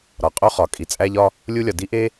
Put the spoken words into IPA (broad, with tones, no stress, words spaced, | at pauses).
ɾɒ˩qʼo˥ χɒ˩ kʼi˩t͡sʼæ˧ʎɒ˧ | lʲu˥lʲɒ˩ di˥ʔe˥